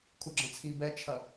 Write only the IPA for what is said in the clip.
kʰ u ɡ͡ǁ ɐ̃ t͡sʰ i b ɛ t͡ʃʰ ɐ

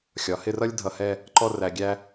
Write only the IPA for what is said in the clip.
xʲ ɒ˩˧ h ɪ˥˧ r ʌ˥ lʲ dʱ ʌ˧ h ɛ˥˧ | ǃ ɔ˥˧ r æ˧ ɡʲ æ˥

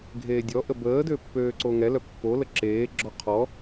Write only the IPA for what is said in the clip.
ɡʱ eː dʲ ɔ ʔ ə b əː d ø pː øː ǀ o ŋ ɛ l œ pː o l ə ǁ eː ɡ͡ǁ ɔ qʰ ɔ

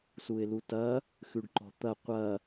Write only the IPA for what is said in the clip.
s u ɪ̯ l u t ɐ | x ʉ ɖ ǃ ɔ̤ t̪ ɐ qʷ ɐ

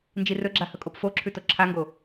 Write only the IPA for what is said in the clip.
n d͡ʒ i r ɵ ɡ͡ǁ a h ɵ kʼ o p f o ǁʰ ʉ t o ǁʰ a ŋ ɡ o

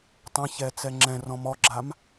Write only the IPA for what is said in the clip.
tˤ ɛ̃ ç ɛ t͡s ɛ ŋ͡ǁ ɛ̃ r ɔ̃ m ɔ ɡ͡ǁ a m

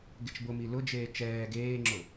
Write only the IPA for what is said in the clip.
ɡ e t͡ʃ b ʊ m i l ʊ d͡ʒ eː t͡ʃ ɛː ɡ eː ŋ͡ǁ ʊ

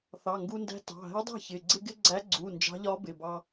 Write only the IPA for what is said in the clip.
θ ɑ˩˧˩ ŋ ɡ u˧ n d æ̤˧˥ t ɑ̤˩˧˩ ɦ ɛ˧˥ dˤ ɛ̤˥˩ ç ɪ˩˧˩ ɡ͡ǀ ɪ˧ ɡ ɪ˧ ɡ͡ǀ æ˧˥ ɡ͡ǀ u˩˧˩ n d͡ʒ ɑ̤˧˥ ʎ ɒ˧˥ b ɪ˩˧˩ b ɑ˧

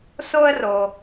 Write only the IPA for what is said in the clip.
s o˥ ə̯ r o˩

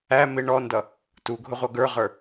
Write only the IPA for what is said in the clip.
æ m ɪ ɳ ɔ n d ʌ | t u ɡʱ ʊ ʁʷ ʌ ɡ ə˞ ʁ ə˞

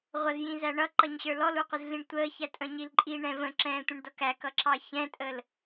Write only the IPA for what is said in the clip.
ʁʷ ʌ z j ĩ z æ ɳ ʌ ǃ ʌ ɲ ɕ ə˞ l ɔ l u qʷ ɪ z ɮ ĩ ɳ tʷ əː ç æ tʼ ə̃ ɲ i l ǃʼ i ɳ ɛ̃ v ə̃ ǁ ɛ̃ː tʷ ə̃ ɳ d ʌ k æ k ʌ ǁ ɑ ç ɛ̃ tʼ əː l

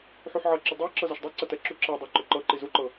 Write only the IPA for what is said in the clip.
ħ u ħ ʕ ʌ ǁ ʏ dˤ ɤ ǁ ɤ z ɤ ʃ dˤ ɤ ǀ ɐ t ɛ ǁ u ǁ ɛ dˤ ɛ ǃ ʏ ǃ ɤ ǃ i z u ǃ ɤ

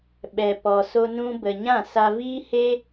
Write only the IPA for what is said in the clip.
ɓ ɛ˧ p ɔ˧ s o˦ n ũ˦ b ə˧ ɲ ã˦˨ s a˧ v iː˦ h e˦

